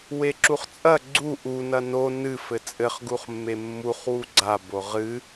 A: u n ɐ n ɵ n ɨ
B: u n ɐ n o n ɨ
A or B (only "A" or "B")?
B